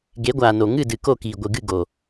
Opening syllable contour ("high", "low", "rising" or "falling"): rising